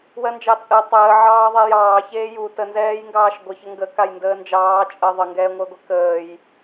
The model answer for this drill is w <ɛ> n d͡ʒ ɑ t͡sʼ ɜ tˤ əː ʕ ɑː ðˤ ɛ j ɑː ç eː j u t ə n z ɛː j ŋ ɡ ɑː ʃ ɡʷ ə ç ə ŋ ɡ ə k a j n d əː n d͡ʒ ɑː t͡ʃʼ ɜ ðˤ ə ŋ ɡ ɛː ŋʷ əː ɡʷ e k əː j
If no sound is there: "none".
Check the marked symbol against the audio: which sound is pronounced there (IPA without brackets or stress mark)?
ɜ